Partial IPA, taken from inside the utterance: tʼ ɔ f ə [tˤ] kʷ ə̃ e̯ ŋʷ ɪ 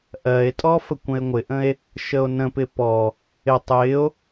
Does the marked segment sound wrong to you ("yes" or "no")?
yes